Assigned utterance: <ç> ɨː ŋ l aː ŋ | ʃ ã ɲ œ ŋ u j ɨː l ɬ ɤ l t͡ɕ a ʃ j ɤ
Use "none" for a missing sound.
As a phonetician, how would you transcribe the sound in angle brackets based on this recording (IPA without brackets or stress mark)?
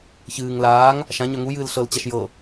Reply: ç